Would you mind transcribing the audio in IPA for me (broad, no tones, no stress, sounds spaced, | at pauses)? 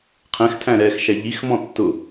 qʰ ɛ̃ x tʰ æ̃ ɾ ɛ x ʃ æ ʎ i x m ɔ̃ tː ʊ